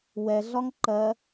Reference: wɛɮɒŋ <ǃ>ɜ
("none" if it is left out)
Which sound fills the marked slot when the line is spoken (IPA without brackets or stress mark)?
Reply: ǃ